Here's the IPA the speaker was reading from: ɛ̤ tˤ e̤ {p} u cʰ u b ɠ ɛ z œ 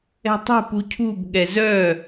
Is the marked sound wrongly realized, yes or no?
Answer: no